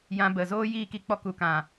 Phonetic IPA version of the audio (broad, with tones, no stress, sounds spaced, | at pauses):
j ã˧ b ə˨ z oː˦ j iː˦˨ k i˧ k͡p ɔ˧ k u˨ k ã˨